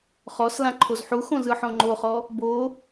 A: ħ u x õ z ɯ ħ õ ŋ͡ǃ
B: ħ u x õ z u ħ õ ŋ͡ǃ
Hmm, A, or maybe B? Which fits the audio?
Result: A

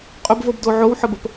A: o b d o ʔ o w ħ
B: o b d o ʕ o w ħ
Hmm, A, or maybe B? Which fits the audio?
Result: B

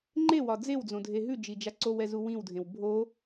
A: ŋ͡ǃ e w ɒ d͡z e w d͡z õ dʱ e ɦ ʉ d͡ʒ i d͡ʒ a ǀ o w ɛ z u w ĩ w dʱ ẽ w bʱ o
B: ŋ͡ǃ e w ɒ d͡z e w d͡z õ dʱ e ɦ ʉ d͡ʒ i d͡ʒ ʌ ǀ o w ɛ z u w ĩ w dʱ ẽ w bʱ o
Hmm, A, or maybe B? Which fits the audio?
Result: A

